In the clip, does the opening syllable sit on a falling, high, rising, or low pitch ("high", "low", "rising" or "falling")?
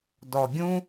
low